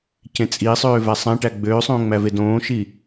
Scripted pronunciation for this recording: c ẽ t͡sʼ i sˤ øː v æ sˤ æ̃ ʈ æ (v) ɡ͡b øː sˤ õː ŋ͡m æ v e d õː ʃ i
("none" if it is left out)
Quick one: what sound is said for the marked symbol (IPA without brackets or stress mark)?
none